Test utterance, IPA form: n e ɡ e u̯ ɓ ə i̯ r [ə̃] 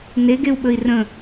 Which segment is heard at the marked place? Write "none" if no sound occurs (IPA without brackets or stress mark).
ə̃